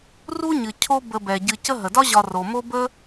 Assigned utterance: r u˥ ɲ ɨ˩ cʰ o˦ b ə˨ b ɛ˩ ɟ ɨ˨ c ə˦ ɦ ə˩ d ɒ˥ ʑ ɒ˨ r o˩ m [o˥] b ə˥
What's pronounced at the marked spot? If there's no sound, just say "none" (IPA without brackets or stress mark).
o˥